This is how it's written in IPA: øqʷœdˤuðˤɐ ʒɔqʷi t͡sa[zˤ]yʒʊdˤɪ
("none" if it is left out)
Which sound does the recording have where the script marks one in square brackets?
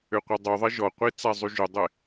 zˤ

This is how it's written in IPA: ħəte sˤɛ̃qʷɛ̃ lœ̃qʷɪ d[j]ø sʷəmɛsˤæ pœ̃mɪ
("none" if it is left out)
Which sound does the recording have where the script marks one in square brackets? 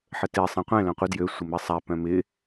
j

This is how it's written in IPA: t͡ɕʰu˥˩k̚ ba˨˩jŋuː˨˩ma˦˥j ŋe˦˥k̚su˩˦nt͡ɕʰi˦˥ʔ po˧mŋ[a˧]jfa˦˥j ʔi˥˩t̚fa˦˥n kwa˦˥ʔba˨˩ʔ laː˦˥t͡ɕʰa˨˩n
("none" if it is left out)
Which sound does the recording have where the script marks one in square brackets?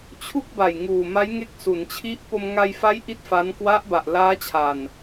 a˧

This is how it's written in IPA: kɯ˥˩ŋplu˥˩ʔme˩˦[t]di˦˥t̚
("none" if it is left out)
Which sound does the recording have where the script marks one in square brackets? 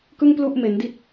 n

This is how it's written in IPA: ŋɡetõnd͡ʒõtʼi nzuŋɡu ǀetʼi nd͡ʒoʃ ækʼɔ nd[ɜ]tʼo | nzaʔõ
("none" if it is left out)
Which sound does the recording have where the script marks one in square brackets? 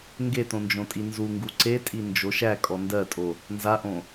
ɜ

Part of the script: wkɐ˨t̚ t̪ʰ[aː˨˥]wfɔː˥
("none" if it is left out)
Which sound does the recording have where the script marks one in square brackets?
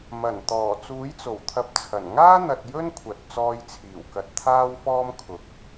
aː˥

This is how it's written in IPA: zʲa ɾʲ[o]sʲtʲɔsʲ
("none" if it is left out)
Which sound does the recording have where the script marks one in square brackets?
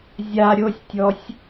o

